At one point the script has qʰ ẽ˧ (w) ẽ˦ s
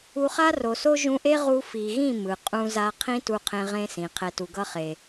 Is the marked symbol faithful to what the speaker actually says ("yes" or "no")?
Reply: no